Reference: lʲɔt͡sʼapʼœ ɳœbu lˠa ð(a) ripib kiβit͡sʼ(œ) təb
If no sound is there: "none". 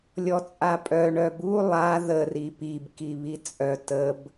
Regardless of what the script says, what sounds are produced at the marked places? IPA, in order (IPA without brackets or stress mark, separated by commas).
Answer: ə, œ